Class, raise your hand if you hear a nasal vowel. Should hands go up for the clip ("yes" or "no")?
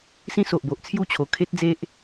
yes